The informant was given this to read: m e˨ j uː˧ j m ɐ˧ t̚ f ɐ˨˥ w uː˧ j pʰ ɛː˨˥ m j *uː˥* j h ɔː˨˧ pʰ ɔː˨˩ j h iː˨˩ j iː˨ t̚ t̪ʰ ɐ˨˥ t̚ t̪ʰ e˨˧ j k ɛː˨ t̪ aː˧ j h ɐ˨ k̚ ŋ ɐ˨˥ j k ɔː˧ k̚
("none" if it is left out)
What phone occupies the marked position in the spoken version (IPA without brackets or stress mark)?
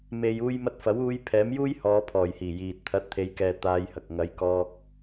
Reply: uː˥